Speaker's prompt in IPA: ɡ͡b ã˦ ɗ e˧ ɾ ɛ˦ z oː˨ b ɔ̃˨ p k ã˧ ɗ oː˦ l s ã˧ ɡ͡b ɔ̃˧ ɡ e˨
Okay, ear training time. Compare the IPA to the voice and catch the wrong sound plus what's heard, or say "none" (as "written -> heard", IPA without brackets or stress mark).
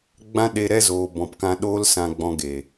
none